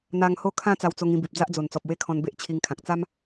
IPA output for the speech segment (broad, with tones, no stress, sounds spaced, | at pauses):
n̪ a˧ ŋ h o˥˧ kʰ ã˥˧ t͡s a˧ w t͡s o˧ ŋ ĩ˧ b i˨ p̚ d͡z a˦ ʔ d͡z o˨˩ n t͡s ɔ˨ p̚ w e˦ kʰ ɔ̃˧ n b e˦ ʔ t͡ɕʰ i˧ ŋ kʰ ã˨ k̚ t͡s a˦ m